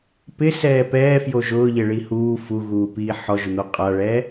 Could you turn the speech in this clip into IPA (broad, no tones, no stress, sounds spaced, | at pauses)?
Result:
p ɪ s ɛː p ɛː f j o ʒ ʊː ʎ e ɭ i h uː f u ɣ uː p iː ħ ɔ ʒ ʊ n̪ o qʼ a ɭ ɛː